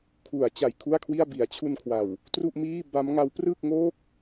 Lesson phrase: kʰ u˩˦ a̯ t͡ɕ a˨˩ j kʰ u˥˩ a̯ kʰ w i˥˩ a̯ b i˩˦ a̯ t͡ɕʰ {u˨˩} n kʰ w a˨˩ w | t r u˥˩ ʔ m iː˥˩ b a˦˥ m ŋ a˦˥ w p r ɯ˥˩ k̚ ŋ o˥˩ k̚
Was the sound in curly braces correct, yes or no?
no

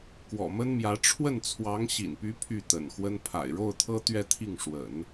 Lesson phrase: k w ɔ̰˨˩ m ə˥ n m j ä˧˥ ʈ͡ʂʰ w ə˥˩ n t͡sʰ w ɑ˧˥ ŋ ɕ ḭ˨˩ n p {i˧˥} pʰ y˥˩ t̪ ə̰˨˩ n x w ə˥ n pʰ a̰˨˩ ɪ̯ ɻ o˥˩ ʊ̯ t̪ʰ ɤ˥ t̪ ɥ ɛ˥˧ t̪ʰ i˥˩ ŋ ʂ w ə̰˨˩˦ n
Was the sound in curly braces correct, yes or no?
no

